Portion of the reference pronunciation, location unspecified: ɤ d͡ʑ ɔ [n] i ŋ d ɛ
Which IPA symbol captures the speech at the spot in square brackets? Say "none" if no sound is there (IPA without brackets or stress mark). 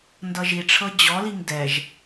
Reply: l